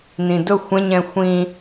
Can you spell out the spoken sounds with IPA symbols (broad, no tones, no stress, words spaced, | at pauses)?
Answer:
nĩdʊ xʷɛ̃ɲɛ̃ xʷĩ